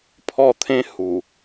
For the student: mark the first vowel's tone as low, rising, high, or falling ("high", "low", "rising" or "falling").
falling